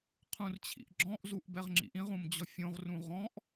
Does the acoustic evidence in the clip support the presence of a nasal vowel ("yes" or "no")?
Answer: yes